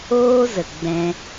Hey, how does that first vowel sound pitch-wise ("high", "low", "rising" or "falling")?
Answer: high